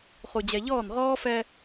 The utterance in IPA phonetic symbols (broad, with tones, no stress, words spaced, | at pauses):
χu˨d͡ʑɛ˨ʎɔː˦˨n ʁɔː˦fɛ˦